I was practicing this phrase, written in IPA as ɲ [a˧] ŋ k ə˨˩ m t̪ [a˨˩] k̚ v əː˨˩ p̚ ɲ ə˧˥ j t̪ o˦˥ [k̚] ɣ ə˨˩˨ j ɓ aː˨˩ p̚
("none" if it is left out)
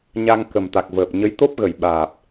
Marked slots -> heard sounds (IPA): a˧, a˨˩, p̚

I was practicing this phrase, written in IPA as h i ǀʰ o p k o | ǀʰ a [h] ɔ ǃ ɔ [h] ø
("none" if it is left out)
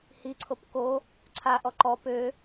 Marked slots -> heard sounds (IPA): ʔ, p

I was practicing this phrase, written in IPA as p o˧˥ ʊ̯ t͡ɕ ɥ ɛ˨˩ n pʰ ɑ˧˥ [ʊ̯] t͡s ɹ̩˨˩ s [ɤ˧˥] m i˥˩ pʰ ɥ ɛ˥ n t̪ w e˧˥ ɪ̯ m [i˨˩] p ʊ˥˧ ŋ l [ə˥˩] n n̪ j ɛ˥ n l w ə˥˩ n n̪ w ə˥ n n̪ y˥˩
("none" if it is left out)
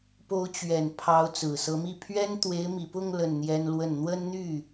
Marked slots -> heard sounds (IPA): ʊ̯, ɤ˧˥, i˨˩, ə˥˩

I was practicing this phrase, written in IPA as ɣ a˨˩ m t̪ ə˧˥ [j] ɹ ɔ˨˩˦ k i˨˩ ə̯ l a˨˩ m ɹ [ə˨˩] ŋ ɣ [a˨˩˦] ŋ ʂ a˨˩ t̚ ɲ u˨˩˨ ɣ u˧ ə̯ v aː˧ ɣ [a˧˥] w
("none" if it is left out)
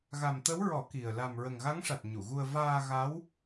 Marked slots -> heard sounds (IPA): w, ə˨˩, a˧˥, a˧˥

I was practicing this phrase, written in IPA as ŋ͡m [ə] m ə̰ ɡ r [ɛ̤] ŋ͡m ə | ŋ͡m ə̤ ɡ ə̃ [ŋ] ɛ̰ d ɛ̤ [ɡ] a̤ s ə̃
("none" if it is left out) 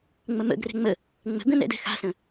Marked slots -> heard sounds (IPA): ə, ɛ̤, n, x

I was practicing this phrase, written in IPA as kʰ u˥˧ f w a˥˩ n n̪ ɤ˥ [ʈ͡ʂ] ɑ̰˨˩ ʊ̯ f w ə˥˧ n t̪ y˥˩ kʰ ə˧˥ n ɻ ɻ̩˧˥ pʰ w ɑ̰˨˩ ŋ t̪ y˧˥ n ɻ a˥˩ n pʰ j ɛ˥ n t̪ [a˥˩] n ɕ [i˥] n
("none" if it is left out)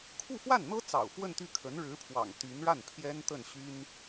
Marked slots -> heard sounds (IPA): t͡s, ə˥˩, y˥

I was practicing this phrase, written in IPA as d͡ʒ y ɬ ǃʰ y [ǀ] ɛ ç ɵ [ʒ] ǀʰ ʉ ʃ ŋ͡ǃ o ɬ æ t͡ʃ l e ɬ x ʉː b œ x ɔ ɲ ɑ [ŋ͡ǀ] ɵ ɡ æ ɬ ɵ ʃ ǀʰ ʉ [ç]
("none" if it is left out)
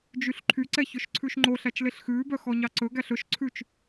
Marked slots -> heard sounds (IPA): ǀ, ʃ, ǀ, t͡ʃ

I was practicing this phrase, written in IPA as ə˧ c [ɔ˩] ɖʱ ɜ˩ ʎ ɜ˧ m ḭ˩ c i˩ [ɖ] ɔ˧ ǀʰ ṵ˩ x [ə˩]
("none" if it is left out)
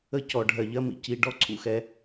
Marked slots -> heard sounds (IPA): ɔ˩, ɖ, ɛ˩

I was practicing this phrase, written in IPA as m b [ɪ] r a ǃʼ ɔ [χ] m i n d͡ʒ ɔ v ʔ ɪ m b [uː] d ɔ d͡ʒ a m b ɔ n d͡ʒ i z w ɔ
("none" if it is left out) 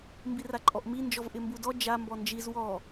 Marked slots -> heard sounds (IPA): i, ʔ, u

